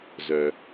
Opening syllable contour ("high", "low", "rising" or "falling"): low